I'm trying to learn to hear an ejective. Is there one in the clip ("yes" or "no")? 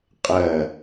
yes